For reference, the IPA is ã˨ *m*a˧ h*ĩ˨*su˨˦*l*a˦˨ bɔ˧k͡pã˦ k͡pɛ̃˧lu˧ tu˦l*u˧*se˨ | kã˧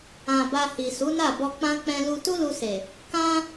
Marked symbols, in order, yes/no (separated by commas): no, no, no, yes